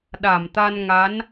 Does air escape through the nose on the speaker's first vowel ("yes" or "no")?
no